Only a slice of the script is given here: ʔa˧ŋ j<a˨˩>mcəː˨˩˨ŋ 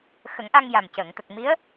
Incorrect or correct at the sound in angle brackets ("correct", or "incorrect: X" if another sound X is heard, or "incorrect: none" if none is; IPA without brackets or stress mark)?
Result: correct